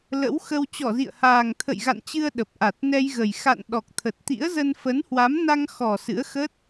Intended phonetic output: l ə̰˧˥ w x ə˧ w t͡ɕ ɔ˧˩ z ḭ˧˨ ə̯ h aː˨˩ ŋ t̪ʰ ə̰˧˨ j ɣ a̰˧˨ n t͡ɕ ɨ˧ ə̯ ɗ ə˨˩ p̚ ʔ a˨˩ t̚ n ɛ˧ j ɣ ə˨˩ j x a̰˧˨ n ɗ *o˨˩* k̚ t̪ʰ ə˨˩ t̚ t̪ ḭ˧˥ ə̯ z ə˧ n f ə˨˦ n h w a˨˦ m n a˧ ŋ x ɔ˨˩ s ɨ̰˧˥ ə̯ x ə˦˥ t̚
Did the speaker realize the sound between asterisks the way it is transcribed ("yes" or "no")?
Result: no